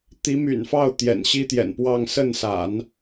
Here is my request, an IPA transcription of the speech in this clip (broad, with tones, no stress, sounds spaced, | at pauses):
t̪ i˧˥ m y̰˨˩ n f ɑ˥˩ ʊ̯ t̪ j ɛ̰˨˩ n ɕ i˥ t̪ j ɛ̰˨˩ n p w ɑ˥˧ ŋ s ə˥˩ n s a̰˨˩˦ n